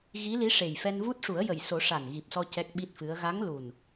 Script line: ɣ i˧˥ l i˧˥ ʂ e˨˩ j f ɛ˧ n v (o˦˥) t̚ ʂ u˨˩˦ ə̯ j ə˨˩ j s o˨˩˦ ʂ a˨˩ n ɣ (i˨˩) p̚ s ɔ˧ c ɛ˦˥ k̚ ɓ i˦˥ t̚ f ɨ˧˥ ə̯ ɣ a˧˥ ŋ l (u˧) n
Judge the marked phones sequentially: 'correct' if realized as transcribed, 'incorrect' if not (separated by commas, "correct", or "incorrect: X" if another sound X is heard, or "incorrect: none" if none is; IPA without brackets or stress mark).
incorrect: u˦˥, correct, incorrect: u˨˩